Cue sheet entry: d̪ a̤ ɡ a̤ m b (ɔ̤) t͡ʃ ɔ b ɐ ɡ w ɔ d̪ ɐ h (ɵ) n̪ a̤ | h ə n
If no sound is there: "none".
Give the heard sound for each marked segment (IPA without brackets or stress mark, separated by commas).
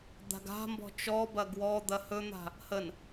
ɔ̤, ɵ